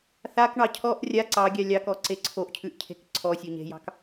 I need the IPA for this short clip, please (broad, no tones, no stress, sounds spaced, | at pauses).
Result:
θ a k ɳ ɑ cʰ ɔ ʔ rʲ a ǀ ɑ ɡʲ a lʲ ɑ k ɔ ǀ e ǀʰ o ʔ cʰ ʉ ʔ cʰ e̤ k ǀʰ ɔ sʲ o ɲ e̤ j ɑ̤ k